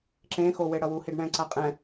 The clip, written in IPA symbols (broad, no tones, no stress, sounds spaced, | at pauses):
ǁ ẽ x o w e ɽ ʌ w u h i ɖ ɳ ɛ̃ ǀ a qʼ ɛ̃